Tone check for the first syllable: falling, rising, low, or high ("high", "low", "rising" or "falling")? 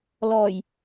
low